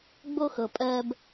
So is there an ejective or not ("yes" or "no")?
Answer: yes